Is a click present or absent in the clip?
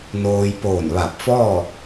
absent